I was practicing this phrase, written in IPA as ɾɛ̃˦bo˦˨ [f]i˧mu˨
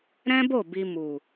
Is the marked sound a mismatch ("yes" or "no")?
yes